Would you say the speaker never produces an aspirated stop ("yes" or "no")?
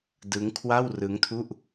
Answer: no